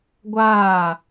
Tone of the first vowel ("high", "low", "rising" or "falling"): falling